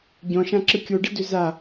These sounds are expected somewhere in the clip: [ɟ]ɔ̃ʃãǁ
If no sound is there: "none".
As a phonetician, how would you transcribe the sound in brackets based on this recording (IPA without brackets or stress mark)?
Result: ɟ